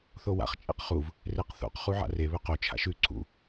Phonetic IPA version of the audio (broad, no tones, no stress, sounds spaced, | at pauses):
θ o w a̰ χ t͡ʃʼ ḭ q χ u v | r e q θ o̰ q χ u ʕ a̰ r e β ɵ q o t͡ʃʰ a̰ ʃ ʉ ǀʰ ṵ